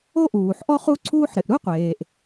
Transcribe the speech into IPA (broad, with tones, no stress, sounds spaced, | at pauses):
o˥ ʔ uː˩ ħ ʔ ɔ˥ χ u˥ ǀʰ uː˥ ħ ɾ ɪ˩ ʔ ɾ u˥ qʷ eː˩ ʔ